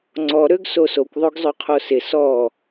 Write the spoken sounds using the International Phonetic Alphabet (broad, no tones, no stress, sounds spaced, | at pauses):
ŋ͡ǀ ɔ ɾ ø ɡ s o s o kʷ ðˤ o ɡ zˤ ø qʰ o s ɪ s ɔ